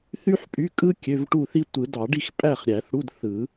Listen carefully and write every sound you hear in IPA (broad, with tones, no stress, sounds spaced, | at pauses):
θ y˥ ħ pʼ y˧˥˧ kʼ ɯ˥ kʲ ø˧˥˧ v ʈ u˥˨ θ i˥ tʷ ɯ˨˩˦ d ɑ˨˩˦ ɖ i˥˨ x pʼ æ˥˨ χ ɾʲ æ˨˩˦ θ ɽ u˧˥˧ d θ ɯ˨˩˦